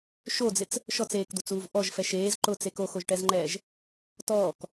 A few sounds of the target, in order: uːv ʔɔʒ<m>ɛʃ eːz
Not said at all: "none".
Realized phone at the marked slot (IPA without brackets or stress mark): f